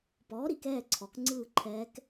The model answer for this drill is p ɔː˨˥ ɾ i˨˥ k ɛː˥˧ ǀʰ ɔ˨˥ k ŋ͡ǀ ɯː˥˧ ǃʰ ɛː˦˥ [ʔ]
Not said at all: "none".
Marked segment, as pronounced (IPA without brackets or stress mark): k